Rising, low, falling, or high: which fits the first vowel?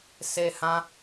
high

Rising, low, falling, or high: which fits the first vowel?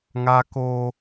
high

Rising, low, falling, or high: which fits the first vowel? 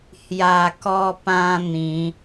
low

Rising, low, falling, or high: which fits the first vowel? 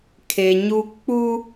low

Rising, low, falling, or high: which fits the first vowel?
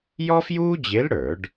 high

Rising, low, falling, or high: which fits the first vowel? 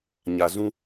low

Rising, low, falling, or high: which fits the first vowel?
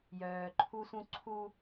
low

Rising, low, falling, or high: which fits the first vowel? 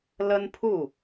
high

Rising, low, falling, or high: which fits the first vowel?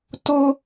high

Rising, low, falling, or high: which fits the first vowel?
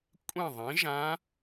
falling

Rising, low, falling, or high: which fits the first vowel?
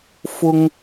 high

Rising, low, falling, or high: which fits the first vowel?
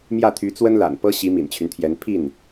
falling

